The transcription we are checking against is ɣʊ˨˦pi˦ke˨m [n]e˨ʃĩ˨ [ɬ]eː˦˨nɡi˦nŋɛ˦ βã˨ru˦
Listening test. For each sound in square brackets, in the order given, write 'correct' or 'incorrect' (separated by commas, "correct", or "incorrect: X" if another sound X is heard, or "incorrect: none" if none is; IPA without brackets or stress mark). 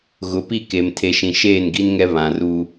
incorrect: tʰ, incorrect: ʃ